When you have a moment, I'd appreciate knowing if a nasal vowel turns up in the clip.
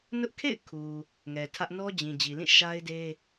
yes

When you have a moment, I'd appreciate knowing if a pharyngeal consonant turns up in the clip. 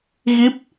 no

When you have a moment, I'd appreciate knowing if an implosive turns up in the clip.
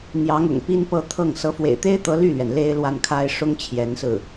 no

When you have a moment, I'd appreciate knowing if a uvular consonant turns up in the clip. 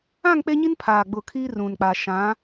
no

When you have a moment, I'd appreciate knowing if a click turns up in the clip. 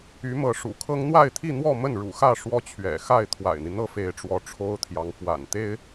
no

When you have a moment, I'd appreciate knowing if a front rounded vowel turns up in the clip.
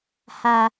no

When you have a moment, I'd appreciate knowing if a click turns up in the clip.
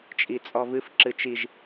yes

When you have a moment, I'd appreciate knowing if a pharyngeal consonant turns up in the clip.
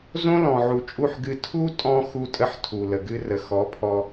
yes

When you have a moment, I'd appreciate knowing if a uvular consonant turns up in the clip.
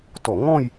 no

